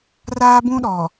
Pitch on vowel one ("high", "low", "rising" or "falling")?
high